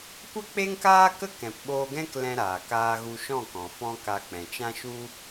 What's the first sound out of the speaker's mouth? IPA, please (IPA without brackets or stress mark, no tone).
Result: kʷ